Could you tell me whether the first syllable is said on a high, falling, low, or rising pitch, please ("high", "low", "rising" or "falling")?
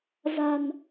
low